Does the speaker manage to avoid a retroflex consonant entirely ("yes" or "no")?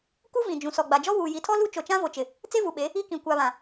yes